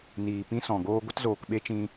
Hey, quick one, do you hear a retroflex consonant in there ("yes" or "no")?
no